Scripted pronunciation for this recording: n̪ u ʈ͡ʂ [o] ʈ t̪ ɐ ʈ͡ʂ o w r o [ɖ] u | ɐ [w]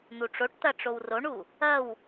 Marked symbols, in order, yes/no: yes, no, yes

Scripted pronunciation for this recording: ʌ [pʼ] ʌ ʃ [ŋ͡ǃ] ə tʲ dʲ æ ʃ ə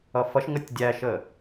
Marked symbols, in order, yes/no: no, no

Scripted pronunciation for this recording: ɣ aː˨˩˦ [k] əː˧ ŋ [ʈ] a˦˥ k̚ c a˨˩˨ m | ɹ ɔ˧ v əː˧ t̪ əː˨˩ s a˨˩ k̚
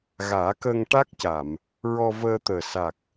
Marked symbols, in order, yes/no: yes, yes

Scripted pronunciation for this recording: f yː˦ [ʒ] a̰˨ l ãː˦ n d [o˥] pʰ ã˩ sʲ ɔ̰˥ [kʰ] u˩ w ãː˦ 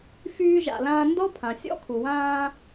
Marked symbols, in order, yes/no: yes, no, yes

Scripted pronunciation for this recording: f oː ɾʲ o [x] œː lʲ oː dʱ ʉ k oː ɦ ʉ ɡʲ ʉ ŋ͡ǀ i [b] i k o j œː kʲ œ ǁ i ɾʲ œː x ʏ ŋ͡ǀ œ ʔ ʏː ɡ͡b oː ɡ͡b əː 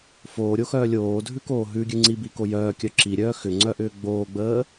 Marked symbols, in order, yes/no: yes, yes

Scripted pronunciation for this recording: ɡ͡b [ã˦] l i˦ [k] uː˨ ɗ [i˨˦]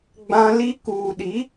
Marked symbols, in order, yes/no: yes, yes, yes

